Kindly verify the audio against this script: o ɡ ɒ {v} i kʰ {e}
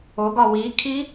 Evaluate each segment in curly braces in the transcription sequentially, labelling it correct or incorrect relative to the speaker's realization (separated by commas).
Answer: incorrect, incorrect